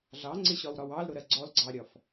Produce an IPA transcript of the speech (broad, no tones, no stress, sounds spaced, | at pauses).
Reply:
ɮ ɑ ŋ͡ǀ ɪ ɕ ɒ w ɾ ɒ w ɑ l ɾ ʊ ɾ ɜ ɡ͡ǀ ɔ l ɡ͡ǀ ɑ ɾʲ ɒ f